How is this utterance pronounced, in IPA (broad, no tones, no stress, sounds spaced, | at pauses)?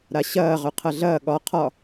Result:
ɾ a ɕ ɐː ʁ œ qʰ ɐ ɮ ɐː ɠ ɒ qʰ ɒ